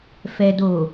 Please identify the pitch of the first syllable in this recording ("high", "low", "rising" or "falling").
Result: low